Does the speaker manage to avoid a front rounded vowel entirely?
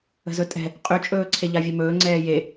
no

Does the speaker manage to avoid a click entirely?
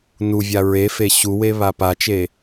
yes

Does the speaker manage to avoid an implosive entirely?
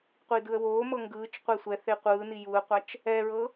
yes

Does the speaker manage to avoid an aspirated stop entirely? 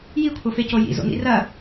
no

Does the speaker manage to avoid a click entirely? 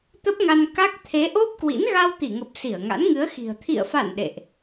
yes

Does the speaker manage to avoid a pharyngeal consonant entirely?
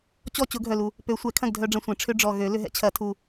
yes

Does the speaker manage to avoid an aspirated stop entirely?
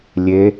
yes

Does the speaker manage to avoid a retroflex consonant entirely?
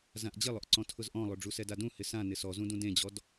no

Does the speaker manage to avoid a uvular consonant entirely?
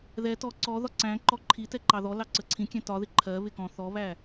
yes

